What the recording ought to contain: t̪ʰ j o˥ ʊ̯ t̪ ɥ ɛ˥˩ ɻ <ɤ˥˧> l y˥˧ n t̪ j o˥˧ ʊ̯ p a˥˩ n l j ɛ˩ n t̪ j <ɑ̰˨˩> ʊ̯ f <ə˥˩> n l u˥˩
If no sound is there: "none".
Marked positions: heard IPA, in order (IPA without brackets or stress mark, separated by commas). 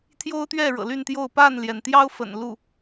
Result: ɤ̰˨˩, ɑ˥, ə̰˨˩